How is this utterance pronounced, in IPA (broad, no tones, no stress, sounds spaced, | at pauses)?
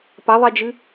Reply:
p ɐ ðˤ i d͡ʒ ɨ